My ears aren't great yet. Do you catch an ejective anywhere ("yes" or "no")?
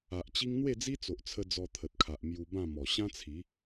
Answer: no